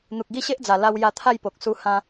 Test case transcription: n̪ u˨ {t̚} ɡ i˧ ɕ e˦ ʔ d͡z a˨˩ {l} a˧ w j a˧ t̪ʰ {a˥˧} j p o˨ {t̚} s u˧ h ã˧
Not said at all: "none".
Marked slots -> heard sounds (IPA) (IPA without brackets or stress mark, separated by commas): k̚, l, a˥˧, k̚